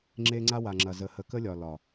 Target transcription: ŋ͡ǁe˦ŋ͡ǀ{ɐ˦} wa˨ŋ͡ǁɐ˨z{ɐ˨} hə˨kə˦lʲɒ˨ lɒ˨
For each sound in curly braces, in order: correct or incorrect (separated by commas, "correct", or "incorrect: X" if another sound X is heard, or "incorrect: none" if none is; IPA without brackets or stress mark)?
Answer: incorrect: a˦, incorrect: ə˨